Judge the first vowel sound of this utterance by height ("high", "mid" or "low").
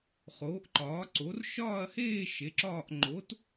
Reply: mid